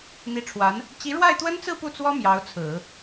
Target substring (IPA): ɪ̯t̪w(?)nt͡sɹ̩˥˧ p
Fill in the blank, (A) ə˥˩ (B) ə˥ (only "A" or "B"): B